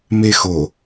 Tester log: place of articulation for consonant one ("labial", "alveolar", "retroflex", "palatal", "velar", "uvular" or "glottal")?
labial